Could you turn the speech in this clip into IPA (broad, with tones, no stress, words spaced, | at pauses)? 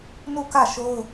nu˦˨kä˦˨ʃo˦ʊ̯